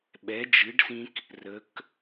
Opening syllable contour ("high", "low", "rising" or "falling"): rising